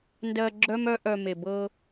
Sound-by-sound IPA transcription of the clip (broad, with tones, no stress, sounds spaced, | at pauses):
n d ɜ˧ ɡ͡ǁ œ˦ m œ˦ ʔ œ˧ m e˨ b ɤ˧